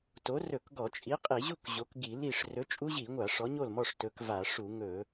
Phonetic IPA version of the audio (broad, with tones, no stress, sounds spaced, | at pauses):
t o˨˥ r ɵ˧˩˧ k ɡ ɔ˧˩˧ t͡ʃʼ i˨˥ qʼ i˧˩˧ ʑ u˥˨ k ʑ o˨˥ k ɡ i˧˩˧ l i˥˨ ʂ r ɵ˨˥ t͡ʃʼ u˦˥ ʑ i˧˩˧ ŋʷ a˧˩˧ ʂ ɔ˨˥ ɲ o˥˨ l m ɔ˥˨ ʂ t ɵ˨˥ k v a˧˩˧ ʂ u˧˩˧ ŋ ɵ˧˩˧